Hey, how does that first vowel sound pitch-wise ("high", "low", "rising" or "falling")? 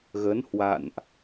rising